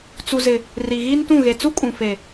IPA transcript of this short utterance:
t͡su˨zɪ˨ | ri˨ɣiː˦ntũ˦˨ ɣe˨t͡su˦kʼũ˨ fe˨

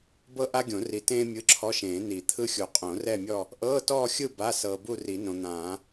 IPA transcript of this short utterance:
bɤ˥ ʔa˥ɡʲõ˨˩˦ ri˨tẽː˥ mʲɯ˧˥˧ǁʰɔ˧˥˧ʃẽː˨˩˦ ni˨˩˦t̪ʰɯ˥xʲu˨ qʼõ˨˩˦rɛ˥˧mʲɔ˥˧ | ʔɤː˧˥˧tɔː˥˧xʲɯ˥˧ ba˧˥˧ sɤː˨bu˥˧ri˨˩˦ nõ˨n̪ãː˨˩˦

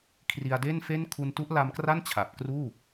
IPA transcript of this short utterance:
kʰri˧a̯de˥˩nfe˥˩n kʰu˧ntu˦˥ʔla˧mkra˥˩n t͡ɕʰa˨˩p̚ kruː˥˩

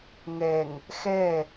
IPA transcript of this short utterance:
ŋɛŋ | xɛ

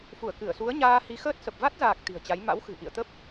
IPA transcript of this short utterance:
fu˧˩ə̯ kɨ˧˩ə̯su˨˦ə̯ ɲaː˧hi˨˦xəː˦˥t̚sə˨˩p̚ va˦˥t̚zaː˨˩k̚ t̪i̤˨˩ə̯t͡ɕa˨˦j ma̰˧˥wxɨ̤˨˩ ʔḭ˧˨ə̯t̪ə˦˥p̚

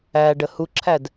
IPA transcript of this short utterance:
æ ɖəhuǁʰæd

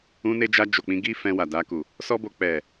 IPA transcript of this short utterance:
ũ˧ne˧d͡ʒa˧ d͡ʒo˨k͡pĩ˧ɡi˦ fɛ̃˧wa˨da˧ku˨ | sɔ˦bo˧ k͡pɛ˨

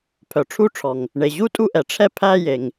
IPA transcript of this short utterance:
pʰœ˩ʈ͡ʂʰu˥˧ʈ͡ʂʰɔ˩ŋ | ɳe˩ʑu˥˧tʼu˥˧ʔɛ˩ ʈ͡ʂʰɛ˥˧pʰæ˥˧ je˩ŋ

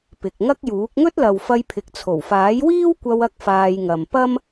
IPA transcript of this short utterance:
pɪ˨k̚ŋɐ˥k̚juː˨˥k̚ ŋɵ˥t̚lɐ˨w fɐ˧jpʰɪ˨k̚t͡sʰo˨˩wfaː˨˥j wiː˥wkʷɐ˧w ɐ˥k̚faː˧jŋɐ˨m pɐ˥m

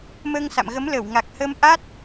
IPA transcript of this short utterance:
məː˧ŋsa̰˧˨mɣə˨˦m lə˧˩wŋa˨˩k̚ hə˧mʔa˦˥t̚

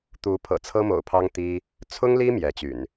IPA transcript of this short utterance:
t̪u˨˦ pʰɤ̰˨˩t͡sʰɤ˦mo̰˨˩ʊ̯pʰɑ˦ŋ t̪i˦ | t͡sʰʊ˦ŋli˦ mjɛ˨˦t͡ɕy̰˨˩n

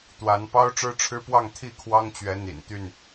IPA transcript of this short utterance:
t̪wa˨˦npɑ˦ʊ̯ ʈ͡ʂɻ̩˦ʈ͡ʂʰɻ̩˦pwɑ˥˨ŋ t̪ʰi˥˨kʰwɑ˦ŋt͡ɕɥɛ˨˦ n̪ḭ˨˩nt̪y˥˨n

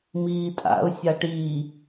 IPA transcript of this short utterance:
miːtʼa̰ʊ̯ sʲaʈiː

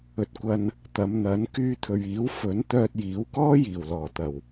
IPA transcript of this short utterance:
ɵ˨t̚kʷɐ˧n | t̪ɐ˨˧mn̪ɐ˨˥n kyː˧t̪ʰɵ˨ɥiː˨˥w fɵ˨˥n t̪œː˧t̚jiː˨˥wkɔː˥ jiː˨˩wlɔː˨˩t̪ɐ˨˩w

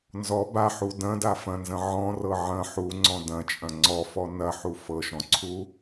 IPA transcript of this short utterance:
nzɔ baħu dɐ̃da fɐ̃nzɐ̃ ʕɔ̃rɤ ʕɐ̃ ħuŋ͡ǀɔ̃ dɐ̃t͡ʃʼɐ̃ ŋ͡ǀɔfɔ nɐħu fɤʃɔ̃ǀʰu

